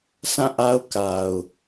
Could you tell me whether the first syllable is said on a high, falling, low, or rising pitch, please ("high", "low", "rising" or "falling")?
falling